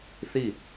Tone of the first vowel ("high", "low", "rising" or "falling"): falling